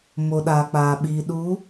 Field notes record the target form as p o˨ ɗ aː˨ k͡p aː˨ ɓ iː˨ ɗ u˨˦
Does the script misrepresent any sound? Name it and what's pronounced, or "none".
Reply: p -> m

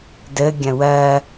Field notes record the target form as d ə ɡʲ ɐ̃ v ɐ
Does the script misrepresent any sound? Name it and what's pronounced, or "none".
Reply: v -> w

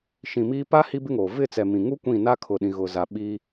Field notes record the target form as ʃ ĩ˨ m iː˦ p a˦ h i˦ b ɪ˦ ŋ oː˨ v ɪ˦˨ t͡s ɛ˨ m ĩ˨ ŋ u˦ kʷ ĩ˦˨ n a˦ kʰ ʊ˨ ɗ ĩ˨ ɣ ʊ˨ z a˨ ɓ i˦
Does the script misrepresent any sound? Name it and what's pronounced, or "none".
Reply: none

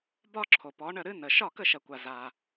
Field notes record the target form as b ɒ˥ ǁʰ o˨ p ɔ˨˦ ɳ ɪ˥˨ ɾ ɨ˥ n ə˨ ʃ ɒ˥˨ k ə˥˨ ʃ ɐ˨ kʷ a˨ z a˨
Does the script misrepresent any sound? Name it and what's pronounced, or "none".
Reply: ɪ˥˨ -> ə˥˨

